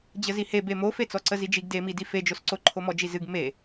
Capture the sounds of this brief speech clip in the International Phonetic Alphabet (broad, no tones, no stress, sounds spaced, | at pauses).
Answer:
d͡ʑ ə z i h e b e m o f e t͡s ɔ ǀ ə z i d͡ʒ i ɡ d e m i d i f e d͡ʒ o s ǀ o ǃʰ o m ɔ d͡ʒ i z ɨ ɡ m e